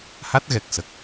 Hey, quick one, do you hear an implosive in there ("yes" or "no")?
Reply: no